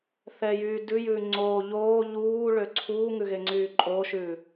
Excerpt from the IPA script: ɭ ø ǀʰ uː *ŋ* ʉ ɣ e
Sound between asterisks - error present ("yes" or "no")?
no